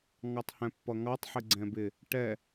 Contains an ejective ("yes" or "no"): no